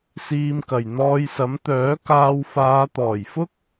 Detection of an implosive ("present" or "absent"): absent